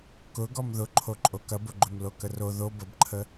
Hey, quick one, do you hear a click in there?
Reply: yes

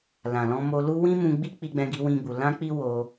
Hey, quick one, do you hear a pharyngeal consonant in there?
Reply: no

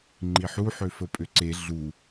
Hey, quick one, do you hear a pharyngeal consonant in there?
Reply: yes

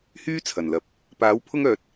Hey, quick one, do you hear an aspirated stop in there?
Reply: yes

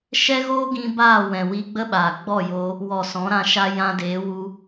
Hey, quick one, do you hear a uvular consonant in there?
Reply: no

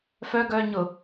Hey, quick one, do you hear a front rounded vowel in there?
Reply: yes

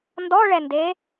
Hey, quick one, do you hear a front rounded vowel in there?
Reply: no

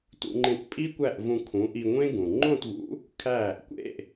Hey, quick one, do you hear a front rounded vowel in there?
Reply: no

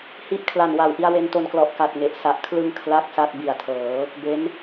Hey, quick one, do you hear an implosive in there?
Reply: no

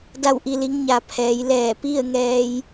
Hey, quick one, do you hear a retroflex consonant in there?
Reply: no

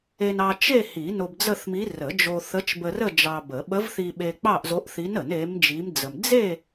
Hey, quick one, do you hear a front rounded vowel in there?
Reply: no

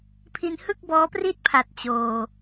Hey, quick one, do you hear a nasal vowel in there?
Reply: no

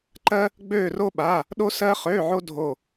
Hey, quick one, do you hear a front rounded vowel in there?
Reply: yes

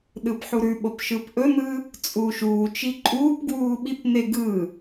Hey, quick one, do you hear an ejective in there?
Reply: yes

